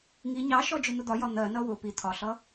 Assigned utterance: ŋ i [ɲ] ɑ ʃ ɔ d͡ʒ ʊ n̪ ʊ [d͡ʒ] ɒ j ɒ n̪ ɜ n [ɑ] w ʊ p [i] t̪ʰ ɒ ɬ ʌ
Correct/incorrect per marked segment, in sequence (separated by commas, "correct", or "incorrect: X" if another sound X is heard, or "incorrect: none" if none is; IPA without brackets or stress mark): correct, incorrect: d̪, incorrect: ʌ, correct